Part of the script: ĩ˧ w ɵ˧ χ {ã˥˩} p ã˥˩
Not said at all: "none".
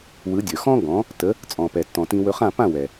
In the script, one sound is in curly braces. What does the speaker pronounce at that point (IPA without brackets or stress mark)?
ã˥˩